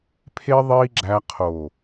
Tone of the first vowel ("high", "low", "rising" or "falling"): high